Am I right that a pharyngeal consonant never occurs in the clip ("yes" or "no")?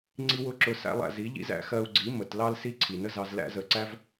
yes